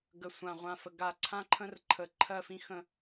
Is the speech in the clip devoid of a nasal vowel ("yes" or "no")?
no